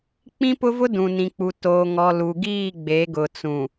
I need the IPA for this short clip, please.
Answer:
k͡p ĩ˦ p ʊ˦ v ʊ˦ d ũ˨ n ĩ˨ k͡p u˨ t oː˨ ŋ ɔ˨ l u˨ ɡ iː˦˨ ɡ͡b e˨˦ ɡ ʊ˨ t͡s ũ˨

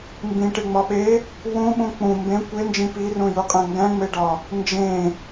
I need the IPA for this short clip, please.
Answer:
m b ĩ ʈ e ŋ͡m ɒ ɓ e | w ũ ɓ ũ k͡p ũ m b ẽ kʷ e n d͡ʒ ĩ p i r ũ j u qʼ æ̃ ŋ ɡ æ̃ ŋ͡m e ɖ ɒ | n d͡ʒ ẽ

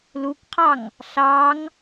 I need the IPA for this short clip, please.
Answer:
l u k qʰ ɑ ŋ | ɬ ɑ ŋ

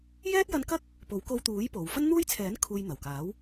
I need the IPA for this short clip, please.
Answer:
j ɛː˥ t̚ j ɐ˧ n k ɐ˥ k̚ | p o˨˥ w k o˧ w t̪ uː˨˥ j p o˨ w f ɐ˥ n n̪ uː˥ j t͡sʰ ɛː˨˥ n kʰ uː˧ j n̪ ɐ˨˩ w k aː˨˥ w

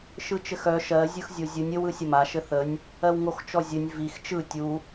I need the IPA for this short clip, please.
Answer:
ʃ ɯ t͡ʃ ɘ x œ ʃ ɜ zʲ ɯ x zʲ o zʲ ɯ nʲ ɘ w ɯ sʲ ə m a ʃ ɘ θ ə nʲ | ɜ w ŋ o x t͡ʃ ɔ zʲ ɘ nʲ v i x t͡ʃ ɯ tʲ u

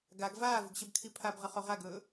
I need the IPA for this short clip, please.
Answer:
ɡ a ɡ v aː v ʉ ɡ ɕ ɐ b kʰ i pʰ a b ʁ ɐ χ o ʁ a ɡ ɵ

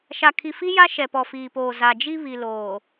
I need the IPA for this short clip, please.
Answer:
ʃ a˨ kʰ i˨ f i˦ j a˦ ʃ ɛ˨ p ɔ˨ f iː˨ p oː˨ z a˨ d͡ʒ i˦ β i˨ l oː˨

